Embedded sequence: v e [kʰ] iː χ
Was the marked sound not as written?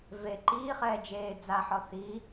yes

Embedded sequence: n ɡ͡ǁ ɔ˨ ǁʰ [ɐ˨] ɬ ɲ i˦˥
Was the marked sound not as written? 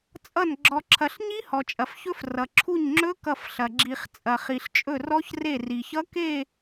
no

